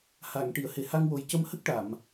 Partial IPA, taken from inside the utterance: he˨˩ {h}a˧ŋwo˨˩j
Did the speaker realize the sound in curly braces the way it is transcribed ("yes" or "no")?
yes